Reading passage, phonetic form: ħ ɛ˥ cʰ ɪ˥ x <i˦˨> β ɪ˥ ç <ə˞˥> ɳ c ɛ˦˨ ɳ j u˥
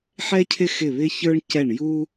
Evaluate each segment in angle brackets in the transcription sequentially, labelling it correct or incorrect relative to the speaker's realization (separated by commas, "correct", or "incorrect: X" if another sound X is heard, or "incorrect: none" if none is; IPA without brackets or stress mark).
incorrect: ɪ˦˨, correct